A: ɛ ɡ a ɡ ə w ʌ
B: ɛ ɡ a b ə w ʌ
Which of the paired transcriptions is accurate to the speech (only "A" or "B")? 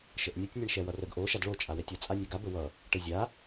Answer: B